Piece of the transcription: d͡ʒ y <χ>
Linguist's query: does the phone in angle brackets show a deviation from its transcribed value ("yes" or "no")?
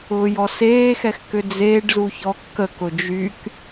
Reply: yes